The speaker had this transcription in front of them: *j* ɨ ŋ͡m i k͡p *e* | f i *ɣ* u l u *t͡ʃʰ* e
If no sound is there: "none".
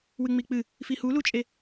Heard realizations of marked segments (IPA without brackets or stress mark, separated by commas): w, ɨ, h, t͡ʃʼ